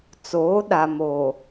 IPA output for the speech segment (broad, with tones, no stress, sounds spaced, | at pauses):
t͡s oː˨˦ ɗ a˨ m oː˨